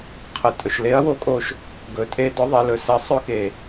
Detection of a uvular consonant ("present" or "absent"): present